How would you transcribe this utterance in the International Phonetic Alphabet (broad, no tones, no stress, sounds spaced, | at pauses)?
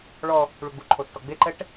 ɭ ɔ | ɭ u ɡ͡b u ǃʰ o tː ɔ ɡ͡b e ǃ ɛ ʈ